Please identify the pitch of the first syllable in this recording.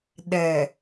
low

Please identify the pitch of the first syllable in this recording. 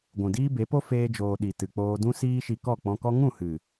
low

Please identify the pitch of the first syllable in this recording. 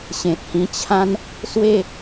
low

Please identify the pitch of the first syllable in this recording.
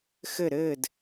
falling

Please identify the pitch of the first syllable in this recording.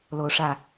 rising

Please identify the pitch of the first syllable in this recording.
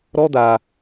high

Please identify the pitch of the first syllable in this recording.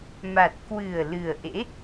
low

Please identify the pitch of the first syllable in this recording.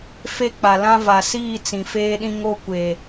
high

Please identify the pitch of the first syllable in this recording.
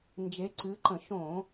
rising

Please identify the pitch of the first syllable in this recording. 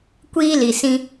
high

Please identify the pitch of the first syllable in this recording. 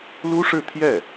high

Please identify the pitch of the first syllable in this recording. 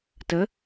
rising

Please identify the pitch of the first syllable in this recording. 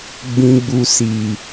low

